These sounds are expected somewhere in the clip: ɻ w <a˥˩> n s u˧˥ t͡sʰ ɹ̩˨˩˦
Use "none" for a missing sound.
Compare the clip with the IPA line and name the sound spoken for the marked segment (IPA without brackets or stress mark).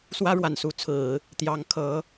a˨˩